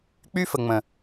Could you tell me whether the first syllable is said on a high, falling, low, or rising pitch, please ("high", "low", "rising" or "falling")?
high